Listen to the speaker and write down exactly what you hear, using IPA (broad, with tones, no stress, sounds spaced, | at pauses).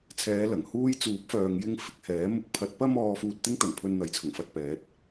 t͡sʰ ɛː˨˧ l ɐ˨˩ ŋ h uː˥ j t͡s uː˨˥ p̚ f œː˨ ŋ j ɪ˧ ŋ f ɪ˧ k̚ h ɛː˨˥ m ʊ˧ k̚ pʰ ɐ˨ t̚ p ɐ˧ m ɔː˨ f uː˧ t̚ t̪ ɪ˥ ŋ t̪ ɐ˨˩ n pʰ ɵ˧ n n̪ ɐ˨˥ j t͡sʰ ʊ˨˩ ŋ f ɐ˧ t̚ p ɛː˨˥ t̚